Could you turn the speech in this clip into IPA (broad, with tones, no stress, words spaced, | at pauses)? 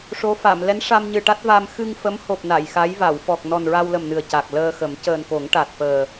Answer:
ʂo˧˥fa˨˩˨m lɛ˧˥nʂa˧mɲɨ˨˩ʈa˦˥t̚ va˧m xɨ˧ŋfə˧˥mho˨˩p̚ na˨˩˨jxa˧˥jva˨˩˨w fɔ˨˩k̚nɔ˨˩nɹa˧wlə˨˩m nɨ˨˩ə̯ca˨˩k̚ ləː˧xə˨˩˦m cəː˨˩nko˨˩˦ŋ ʈa˨˩t̚fəː˨˩